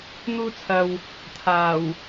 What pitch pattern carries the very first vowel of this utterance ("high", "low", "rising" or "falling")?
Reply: high